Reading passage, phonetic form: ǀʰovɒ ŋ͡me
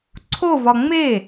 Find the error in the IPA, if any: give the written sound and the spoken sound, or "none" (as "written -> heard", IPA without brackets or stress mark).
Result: none